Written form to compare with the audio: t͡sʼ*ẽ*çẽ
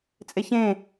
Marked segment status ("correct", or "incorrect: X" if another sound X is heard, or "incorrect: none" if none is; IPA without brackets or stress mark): incorrect: e